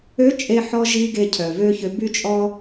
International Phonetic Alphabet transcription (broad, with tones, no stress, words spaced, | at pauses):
ø˧˥t͡ʃʼe˧ ħɔ˧ʒi˧ ɡe˧cʰœ˩ vø˥çø˧˥ by˥t͡ʃʼɔ˥